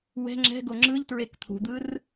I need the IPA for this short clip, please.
w ɛ̤ ŋ͡ǁ ɛ̤ ɡ o ŋ͡ǁ ɯ ʎ t ɹ e k t̪ʰ ṳ d̪ ɯ r

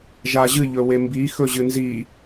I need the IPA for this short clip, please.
ʒ a ʑ ɨ ʎ ɵ w e m b i x ɵ ʑ ɨ n z i

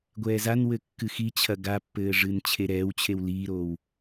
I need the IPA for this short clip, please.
ɡʷ ɛː z a n w ɘ kː ɨ x i t͡ɕʰ ɐ ɡ a pː ɘː ʐ ɨː n t͡ɕʰ e ɾ ɛː w t͡ɕʰ e w l iː ɾ oː w

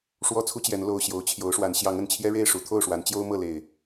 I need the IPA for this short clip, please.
ʂ w ɔ˦ t͡sʰ u˦ t͡ɕ j ɛ˨˦ n l o˨˩ ʊ̯ ɕ j o˨˦ ʊ̯ t͡ɕʰ j o˨˦ ʊ̯ ʂ w a˨˦ n ɕ j ɑ˨˦ ŋ ə˨˩ n t͡ɕʰ j ɛ˦ ɻ e˥˨ ɪ̯ ʂ u˨˦ t̪ʰ o˥˨ ʊ̯ ʂ w a˨˦ n t͡ɕ j o˦ ʊ̯ m ɤ˥˨ l e˨˩ ɪ̯

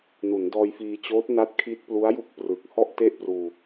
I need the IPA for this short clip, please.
n u˩˦ n d ɔː˧ j f iː˧ t͡ɕ oː˦˥ t̚ n a˦˥ t̚ kʰ i˦˥ t̚ p l u˦˥ a̯ j u˥˩ k̚ p r ɯ˨˩ k̚ h ɔ˥˩ ʔ t e˥˩ ʔ p r uː˧

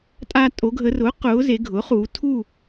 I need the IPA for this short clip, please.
tʼ aː˧ tʼ o˩˧ ɡʱ ə˩˧ r ʊː˩˥ q ʊː˩˧ z e˩˧ ɡʱ ʊː˩˥ χ uː˩˧ tʰ u˥˨

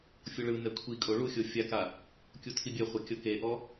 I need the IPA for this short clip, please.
fʲ o ɭ ɯ n ɛ kʷʰ i kʼ o ɭ u xʲ o fʲ a k a | kʲ u tʰ i bʲ ɛ χʷ ɤ kʲ ɤ k e ʔ ɔ

